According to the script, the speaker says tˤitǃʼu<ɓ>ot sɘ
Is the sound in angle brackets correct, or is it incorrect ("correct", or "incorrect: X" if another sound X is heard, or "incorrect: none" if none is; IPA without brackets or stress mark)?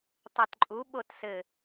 correct